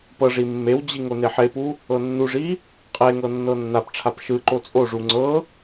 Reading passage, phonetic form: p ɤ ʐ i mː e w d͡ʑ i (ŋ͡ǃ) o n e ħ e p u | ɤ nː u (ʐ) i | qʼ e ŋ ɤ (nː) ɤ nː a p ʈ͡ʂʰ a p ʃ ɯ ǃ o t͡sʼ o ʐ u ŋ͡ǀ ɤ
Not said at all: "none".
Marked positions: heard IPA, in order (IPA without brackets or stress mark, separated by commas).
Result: ŋ, ʐ, nː